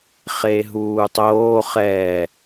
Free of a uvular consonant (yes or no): no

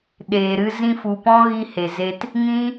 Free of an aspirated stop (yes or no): yes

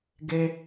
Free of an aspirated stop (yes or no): yes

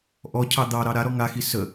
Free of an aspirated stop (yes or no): no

